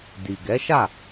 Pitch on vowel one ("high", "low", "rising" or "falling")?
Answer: low